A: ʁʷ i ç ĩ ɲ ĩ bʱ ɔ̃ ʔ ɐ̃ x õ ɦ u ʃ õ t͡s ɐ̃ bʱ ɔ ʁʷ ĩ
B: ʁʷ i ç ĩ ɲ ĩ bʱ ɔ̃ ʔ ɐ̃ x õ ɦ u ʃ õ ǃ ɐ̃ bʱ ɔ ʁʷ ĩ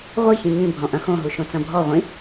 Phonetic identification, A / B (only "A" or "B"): A